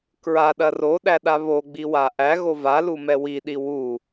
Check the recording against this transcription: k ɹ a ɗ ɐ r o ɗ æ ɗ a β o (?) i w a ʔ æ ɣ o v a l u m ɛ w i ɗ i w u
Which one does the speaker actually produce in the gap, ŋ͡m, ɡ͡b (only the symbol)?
ɡ͡b